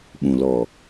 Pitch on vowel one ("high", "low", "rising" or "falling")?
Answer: low